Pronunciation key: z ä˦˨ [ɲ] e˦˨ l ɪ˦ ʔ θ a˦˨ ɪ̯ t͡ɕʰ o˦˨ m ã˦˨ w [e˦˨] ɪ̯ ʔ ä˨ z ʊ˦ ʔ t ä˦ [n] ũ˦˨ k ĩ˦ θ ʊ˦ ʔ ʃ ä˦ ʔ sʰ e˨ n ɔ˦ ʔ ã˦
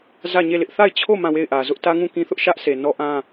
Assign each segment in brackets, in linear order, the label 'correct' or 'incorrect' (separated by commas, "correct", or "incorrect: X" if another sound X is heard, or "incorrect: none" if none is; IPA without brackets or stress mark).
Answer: correct, correct, incorrect: ŋ